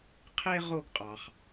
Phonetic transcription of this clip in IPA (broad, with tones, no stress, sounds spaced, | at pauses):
qʰ e˥ ʁ o˥ ɡ qʼ ɑ˩ χ